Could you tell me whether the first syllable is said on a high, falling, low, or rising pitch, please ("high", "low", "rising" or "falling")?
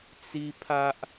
high